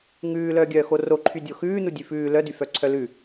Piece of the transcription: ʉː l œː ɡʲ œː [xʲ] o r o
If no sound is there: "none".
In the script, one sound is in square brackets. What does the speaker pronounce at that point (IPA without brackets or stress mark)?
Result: x